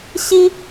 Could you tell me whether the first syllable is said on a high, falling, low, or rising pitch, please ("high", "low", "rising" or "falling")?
high